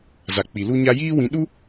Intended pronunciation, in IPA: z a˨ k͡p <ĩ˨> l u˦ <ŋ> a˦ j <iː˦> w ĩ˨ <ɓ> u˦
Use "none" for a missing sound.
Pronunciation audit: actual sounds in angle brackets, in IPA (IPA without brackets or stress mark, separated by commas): i˨, ɲ, iː˦, ɗ